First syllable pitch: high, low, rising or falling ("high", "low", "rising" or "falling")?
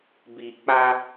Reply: low